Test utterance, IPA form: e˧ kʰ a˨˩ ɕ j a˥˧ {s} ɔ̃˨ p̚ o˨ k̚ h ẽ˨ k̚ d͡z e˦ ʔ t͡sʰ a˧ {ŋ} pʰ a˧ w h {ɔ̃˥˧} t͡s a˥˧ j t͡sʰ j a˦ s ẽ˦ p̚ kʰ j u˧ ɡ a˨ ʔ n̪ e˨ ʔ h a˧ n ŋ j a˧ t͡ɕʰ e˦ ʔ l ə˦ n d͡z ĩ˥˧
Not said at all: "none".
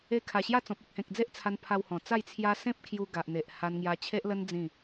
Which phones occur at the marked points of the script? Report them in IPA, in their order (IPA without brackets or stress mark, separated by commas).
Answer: t͡s, n, ɔ̃˨˩